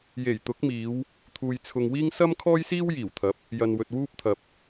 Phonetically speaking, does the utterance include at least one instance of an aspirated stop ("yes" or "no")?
yes